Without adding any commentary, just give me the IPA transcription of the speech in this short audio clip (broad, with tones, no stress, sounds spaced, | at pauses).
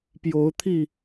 p j o˨˦ ʊ̯ t̪ʰ i˥˨